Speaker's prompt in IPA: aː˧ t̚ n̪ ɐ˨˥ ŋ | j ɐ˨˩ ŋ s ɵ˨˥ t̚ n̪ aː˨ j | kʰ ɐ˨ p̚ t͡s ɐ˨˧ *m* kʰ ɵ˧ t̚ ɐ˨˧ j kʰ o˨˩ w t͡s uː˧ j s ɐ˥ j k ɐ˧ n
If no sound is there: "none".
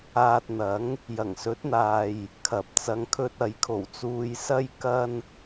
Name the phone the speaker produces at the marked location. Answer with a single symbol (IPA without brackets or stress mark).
ŋ